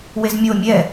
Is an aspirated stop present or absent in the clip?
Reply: absent